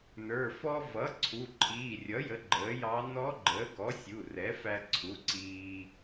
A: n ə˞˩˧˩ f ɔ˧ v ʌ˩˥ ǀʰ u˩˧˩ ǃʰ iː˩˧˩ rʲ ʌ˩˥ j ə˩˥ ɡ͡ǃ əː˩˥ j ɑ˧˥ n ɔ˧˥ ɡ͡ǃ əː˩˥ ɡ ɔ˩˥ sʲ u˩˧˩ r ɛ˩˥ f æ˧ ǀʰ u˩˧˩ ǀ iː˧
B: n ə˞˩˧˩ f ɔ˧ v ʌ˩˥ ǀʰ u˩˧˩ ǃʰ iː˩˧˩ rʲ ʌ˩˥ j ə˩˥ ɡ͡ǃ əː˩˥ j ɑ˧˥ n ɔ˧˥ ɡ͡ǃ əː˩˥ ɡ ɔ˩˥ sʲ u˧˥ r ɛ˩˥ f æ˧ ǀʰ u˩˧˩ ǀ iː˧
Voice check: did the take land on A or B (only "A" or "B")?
A